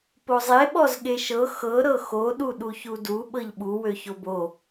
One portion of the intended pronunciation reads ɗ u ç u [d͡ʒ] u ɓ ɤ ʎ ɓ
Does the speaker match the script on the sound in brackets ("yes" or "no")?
no